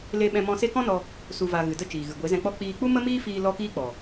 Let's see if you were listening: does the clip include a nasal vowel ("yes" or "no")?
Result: yes